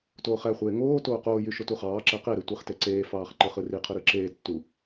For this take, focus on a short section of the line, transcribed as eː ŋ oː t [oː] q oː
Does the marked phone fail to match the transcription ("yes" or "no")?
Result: no